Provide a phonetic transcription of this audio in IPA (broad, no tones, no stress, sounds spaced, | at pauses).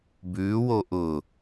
b ʉ w o ʔ ʊ